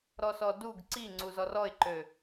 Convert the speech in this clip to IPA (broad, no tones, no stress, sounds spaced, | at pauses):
ɾ ɔ s ɔ d u ɡ ǀ i ŋ͡ǀ u z ɔ r ɔ ɪ̯ ǃ ø